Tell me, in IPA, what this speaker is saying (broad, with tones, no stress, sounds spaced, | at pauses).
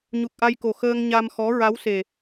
ɲ u˨˩ k̚ ʔ a˧ j k o˨˩ x əː˧ ŋ ɲ a˧ m x ɔ˧˥ ɹ a˧˥ w s e˨˩